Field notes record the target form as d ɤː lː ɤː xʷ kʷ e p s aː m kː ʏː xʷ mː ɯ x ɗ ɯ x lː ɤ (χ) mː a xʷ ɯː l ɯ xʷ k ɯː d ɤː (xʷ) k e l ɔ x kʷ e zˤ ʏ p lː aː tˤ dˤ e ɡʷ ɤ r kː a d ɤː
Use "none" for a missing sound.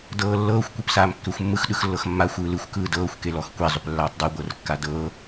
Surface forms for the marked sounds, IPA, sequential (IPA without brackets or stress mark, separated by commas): x, xʷ